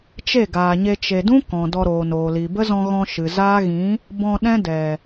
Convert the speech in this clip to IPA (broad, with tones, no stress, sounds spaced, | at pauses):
t͡ʃ e˦˨ ɡ aː˨ ɲ e˧ t͡ʃ e˨ d ũ˦ k ɔ̃˨ d ɔ˧ ɾ oː˨ n oː˨ l i˨ b ə˦ z ɔ̃˧ ɣ ɔ̃˧ ʃ ɨ˨ z aː˦ ɣ ĩ˨˦ | b ɔ̃˧ ɗ ɛ̃˦ d ɛ˨